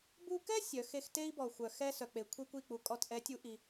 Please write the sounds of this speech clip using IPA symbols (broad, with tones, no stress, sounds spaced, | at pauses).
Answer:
b u˥ k ɛ˥ sʲ œ˨˥ x e˥ x t e˥ i̯ b ɔ˨ xʷ œ˨ x ɛ˥ s œ˨ k͡p e˨ kʷʰ e˥ kʷ i˦˨ k͡p u˨ kʼ ɔ˦˨ t ʔ ɛ˨˥ tʲ u˨˥ ʔ i˨